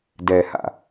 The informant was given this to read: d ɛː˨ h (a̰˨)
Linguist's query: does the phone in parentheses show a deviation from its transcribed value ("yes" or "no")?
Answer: no